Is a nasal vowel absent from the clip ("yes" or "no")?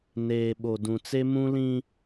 no